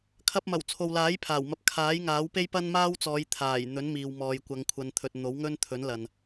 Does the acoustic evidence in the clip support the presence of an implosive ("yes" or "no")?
no